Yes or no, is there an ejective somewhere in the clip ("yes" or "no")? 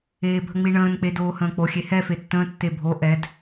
no